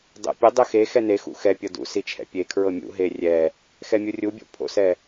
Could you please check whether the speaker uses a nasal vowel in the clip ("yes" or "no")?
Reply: no